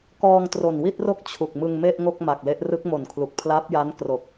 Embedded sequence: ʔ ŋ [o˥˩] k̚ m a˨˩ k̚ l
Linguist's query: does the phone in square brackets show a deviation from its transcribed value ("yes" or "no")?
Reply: no